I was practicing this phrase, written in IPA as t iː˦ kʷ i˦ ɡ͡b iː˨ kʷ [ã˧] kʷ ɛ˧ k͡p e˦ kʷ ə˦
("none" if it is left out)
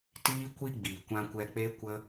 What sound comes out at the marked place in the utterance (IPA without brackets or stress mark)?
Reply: ã˧